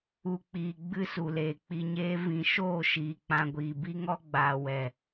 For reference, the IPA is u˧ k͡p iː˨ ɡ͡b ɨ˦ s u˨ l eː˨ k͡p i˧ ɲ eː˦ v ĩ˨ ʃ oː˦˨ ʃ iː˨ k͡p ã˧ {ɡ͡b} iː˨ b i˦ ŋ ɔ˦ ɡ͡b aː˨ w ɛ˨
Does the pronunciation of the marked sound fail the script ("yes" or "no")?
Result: yes